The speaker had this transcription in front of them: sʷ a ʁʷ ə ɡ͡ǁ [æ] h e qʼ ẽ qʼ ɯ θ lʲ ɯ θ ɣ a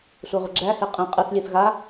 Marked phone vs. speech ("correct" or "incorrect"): correct